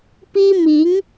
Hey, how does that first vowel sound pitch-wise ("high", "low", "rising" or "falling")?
high